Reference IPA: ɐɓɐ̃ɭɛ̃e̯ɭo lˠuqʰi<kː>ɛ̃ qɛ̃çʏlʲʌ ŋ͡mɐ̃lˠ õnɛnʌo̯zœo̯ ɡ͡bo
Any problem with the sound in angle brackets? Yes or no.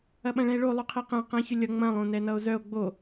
yes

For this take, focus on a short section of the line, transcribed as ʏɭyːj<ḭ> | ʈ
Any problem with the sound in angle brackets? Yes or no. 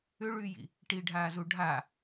no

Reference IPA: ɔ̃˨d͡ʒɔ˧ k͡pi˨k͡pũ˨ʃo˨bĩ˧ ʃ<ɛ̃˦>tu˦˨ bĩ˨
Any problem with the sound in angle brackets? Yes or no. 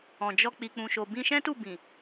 no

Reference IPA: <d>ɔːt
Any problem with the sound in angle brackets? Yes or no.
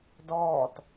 no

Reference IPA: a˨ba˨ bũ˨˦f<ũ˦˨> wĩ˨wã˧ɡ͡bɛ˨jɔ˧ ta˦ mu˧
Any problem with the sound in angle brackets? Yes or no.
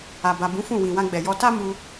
no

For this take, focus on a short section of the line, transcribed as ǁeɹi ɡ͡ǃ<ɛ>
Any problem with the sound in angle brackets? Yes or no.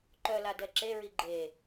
yes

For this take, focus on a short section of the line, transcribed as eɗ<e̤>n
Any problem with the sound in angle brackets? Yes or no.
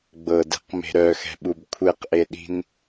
yes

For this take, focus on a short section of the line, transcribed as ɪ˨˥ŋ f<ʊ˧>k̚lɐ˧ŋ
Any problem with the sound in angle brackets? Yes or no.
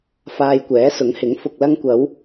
yes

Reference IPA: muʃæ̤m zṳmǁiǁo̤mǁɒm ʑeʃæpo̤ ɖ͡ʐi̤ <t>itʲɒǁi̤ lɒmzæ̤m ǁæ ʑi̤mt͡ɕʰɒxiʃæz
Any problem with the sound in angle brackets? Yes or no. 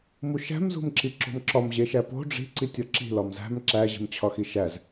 yes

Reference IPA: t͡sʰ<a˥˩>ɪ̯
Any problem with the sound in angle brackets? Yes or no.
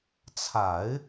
yes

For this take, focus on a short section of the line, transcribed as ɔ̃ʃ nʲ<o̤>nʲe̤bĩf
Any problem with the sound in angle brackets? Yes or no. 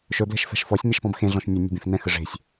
yes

